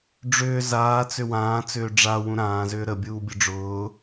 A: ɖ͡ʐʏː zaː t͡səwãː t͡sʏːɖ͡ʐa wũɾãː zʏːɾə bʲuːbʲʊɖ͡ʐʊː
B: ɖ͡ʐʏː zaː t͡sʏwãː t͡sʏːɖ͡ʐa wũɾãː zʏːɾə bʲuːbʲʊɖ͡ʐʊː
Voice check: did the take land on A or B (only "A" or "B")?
B